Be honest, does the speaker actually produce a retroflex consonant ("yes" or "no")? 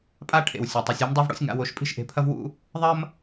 yes